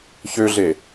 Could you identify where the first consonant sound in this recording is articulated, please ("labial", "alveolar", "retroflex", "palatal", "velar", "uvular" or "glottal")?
palatal